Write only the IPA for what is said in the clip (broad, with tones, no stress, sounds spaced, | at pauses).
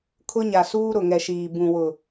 kʰ ʊ˦ ɲ a˨ s uː˦ ɾ ʊ˨ ŋ ɛ˨ ʃ iː˨ b ũ˨ w ʊ˨